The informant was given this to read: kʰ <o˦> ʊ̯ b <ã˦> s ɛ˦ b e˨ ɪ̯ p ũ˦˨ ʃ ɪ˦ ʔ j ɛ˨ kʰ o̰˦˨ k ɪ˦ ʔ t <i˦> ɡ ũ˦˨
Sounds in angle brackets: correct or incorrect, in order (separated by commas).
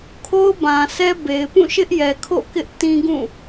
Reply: correct, incorrect, incorrect